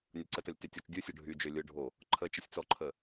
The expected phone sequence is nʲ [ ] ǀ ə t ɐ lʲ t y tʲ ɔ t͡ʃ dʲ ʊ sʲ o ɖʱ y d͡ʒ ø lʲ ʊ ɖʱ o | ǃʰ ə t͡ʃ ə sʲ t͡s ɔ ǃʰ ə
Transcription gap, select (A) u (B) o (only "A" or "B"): B